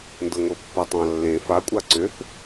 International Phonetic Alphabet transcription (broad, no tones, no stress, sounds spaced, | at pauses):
n d ɤ ŋʷ ɤ pː a tˤ ɑ̃ lː ẽ f a kʷʼ a ǀ ʏ θ